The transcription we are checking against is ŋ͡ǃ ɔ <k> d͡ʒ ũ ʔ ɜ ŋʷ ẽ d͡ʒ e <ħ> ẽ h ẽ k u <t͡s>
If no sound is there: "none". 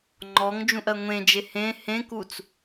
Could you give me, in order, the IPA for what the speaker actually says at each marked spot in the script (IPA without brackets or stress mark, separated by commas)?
ŋ, h, t͡s